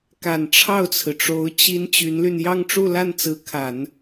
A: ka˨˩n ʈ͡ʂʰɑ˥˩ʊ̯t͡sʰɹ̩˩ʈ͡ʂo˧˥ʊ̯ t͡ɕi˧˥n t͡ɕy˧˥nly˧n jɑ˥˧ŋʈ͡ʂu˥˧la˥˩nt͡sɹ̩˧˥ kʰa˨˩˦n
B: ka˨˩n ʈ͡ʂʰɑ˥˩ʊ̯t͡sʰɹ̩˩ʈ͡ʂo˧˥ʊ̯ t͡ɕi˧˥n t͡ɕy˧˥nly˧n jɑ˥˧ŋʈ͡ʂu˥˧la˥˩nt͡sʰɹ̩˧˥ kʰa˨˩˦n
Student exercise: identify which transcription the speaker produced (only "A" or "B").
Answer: A